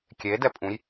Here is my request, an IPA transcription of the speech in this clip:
kʲ e d ɛ pʼ ũ j

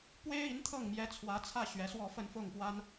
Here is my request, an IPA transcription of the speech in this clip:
p w e˥ ɪ̯ i˧˥ n t̪ʰ ɤ˥˩ ŋ m j ɛ˧˥ t͡sʰ w ä˧˥ t͡sʰ ä˥˩ ɕ ɥ ɛ˧˥ s w ɔ˥˧ f ə˥˧ n f ʊ˥˩ ŋ p w a˥ n

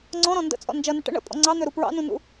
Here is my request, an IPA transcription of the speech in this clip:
ŋ͡ǀ ɔ̃ ɾ ɔ̃ n d ə̰ t͡sʼ ɔ̰ n d͡ʒ ʌ n ə ʈ ə̰ ɳ ə̰ pʼ ɔ̰ ŋ͡ǀ ɑ n̪ ø ɾ u p ɹ ɑ̰ n ũ n ṵ

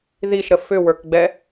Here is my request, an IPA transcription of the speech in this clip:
ð i ʃ ɾ ə f ʏ w ə˞ k ɡ͡b ɛ

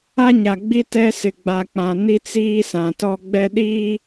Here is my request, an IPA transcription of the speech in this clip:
a˦ ɲ a˨ ɡ͡b i˦ t ɛ˦ s ɪ˨ ɡ͡b a˨ k͡p ã˨ n i˦ t͡s iː˦ s ã˨ t ɔ˦ ɡ͡b ɛ˦ ɗ iː˦

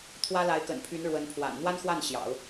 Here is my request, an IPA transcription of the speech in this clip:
t̪ʰ w ä˥ l a˧˥ ɪ̯ k ə̰˨˩ n pʰ y˧˥ n ɻ w ə˧˥ n pʰ w a̰˨˩ n n̪ w a˥ n x w a˥˩ n ɕ j ɑ̰˨˩˦ ʊ̯

